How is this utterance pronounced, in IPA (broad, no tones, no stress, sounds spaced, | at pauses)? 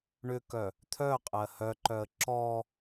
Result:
ɳ ʏ k œ | t̪ʰ œ qʼ ɜ h œ ǃ œ ə̯ ǁ ɔ